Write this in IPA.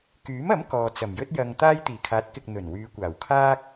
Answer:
k yː˨˥ m ɐ˨˥ m k ɔː˨ t͡s ɐ˨˩ m j ɵ˥ t̚ j ɐ˧ ŋ t̪ aː˥ j t̪ iː˨˩ kʰ aː˨˥ t̚ k ɪ˨ k̚ n̪ ɵ˨˩ n w yː˨˧ kʷ aː˨˩ w kʰ aː˥ k̚

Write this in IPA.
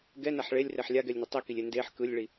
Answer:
ɡ ɛ n a ħ ɭ e lʲ r ɛ ħ lʲ a ɡ ɛ lʲ n ʌ tˤ i k i lʲ e n d e ħ k ɯ lʲ ɭ i

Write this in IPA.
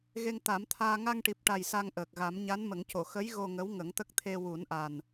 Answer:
ɣ e˧ ŋ t̪ a˨˩˦ m t̪ʰ aː˧ ŋ a˧ ŋ ʈ i˨˩ p̚ ʈ a˨˩ j s a˧ ŋ ʔ əː˨˩ k̚ ɣ a˨˩˦ m ɲ a˧˥ n m ə˨˩˦ ŋ c o˨˩˨ x ə˧˥ j ɣ o˧ ŋ ə˧˥ w ŋ ə˨˩˦ ŋ t̪ ə˦˥ k̚ t̪ʰ e˧ w u˨˩˦ n ʔ a˨˩ n

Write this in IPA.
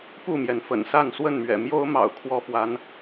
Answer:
p u˥˨ m j ɛ˩ n f ə̰˨˩ n s a˥˨ n s w ə˥˨ n m ɥ ɛ̰˨˩ m j o˦ ʊ̯ m ɑ̰˨˩ ʊ̯ kʰ w ɔ˦ f w a˨˦ n

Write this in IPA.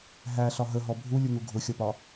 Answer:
ɦ æ ɬ ɒ ɦ ə ɦ ɔ bʱ u lʲ u ŋ u ɡʱ ʊ xʲ ɒ p ɒ

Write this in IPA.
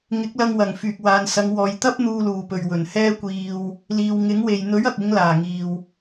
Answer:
ŋ ɪ˨˥ k̚ l ɐ˧ ŋ w ɐ˨˩ ŋ f yː˨ k̚ w aː˨ n s ɐ˨˧ ŋ w ɔː˨˧ j t̪ ɐ˥ p̚ n̪ uː˧ l uː˨ p ɵ˨ ɥ w ɵ˨˩ n h ɛː˥ kʷ iː˧ w | l iː˨ w ŋ ɪ˨˥ ŋ w e˨ j n̪ ɵ˨˥ ɥ ɐ˨ k̚ ɪ˨˧ ŋ l aː˨˩ ŋ iː˨ w

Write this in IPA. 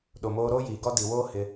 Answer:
ɗ o˨ m oː˦ ɾ oː˦ j iː˨ ɡ ɔ˦ d i˨ w oː˦ h ɪ˦

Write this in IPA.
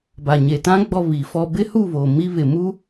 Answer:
b a˨ ɲ e˨ t ã˦ ɡ͡b ɔ˦ β i˨˦ f ɔ˦ b ɪ˦ h u˦˨ β o˨ m i˦ β ɪ˨ m u˦

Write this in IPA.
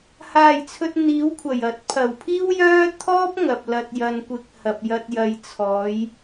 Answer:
h aː˨˩ j t͡sʰ ɵ˨ t̚ n̪ iː˨˥ w kʷʰ ɐ˨˩ j ɐ˨˥ t̚ pʰ ɐ˨˩ w pʰ iː˥ w j œː˥ t̪ʰ ɔː˥ p̚ ŋ ɐ˨ p̚ l ɐ˧ t̚ j ɐ˧ n kʷ ɪ˧ k̚ h ɐ˨ p̚ j ɐ˧ t̚ j ɐ˨ j t͡sʰ ɔː˨˧ j

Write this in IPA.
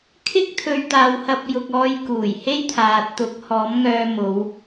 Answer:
kʰ ɪ˥ k̚ t̪ʰ ɵ˨ ɥ t̪ aː˨ w h ɐ˧ p̚ j ʊ˧ k̚ ɔː˧ j k uː˨˩ j h e˥ j t̪ʰ aː˨ t̚ t̪ ʊ˨˥ k̚ h ɔː˨˥ m ŋ œː˧ m o˨˥ w

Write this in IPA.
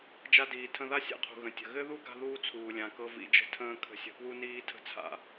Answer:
d͡ʒ a˧ d iː˩ tʰ ə̃˧ ð a˥ sʲ a̰˧ qʰ ṳ˩ ɣ ə̃˩ tʲ ə̤˩ ɣ ɘ˥ ð u˥ ɡ a̤˥ ð uː˥ t͡sʰ uː˩ lʲ ã˩ k ɤ˧ v ḭ˧ d͡ʒ ə̤˥ tʰ ə̃ː˥ kʰ ə̤˧ sʲ ə̤˧ p w u˥ n iː˥ tʰ ə̤˥ t͡sʰ a̰˧

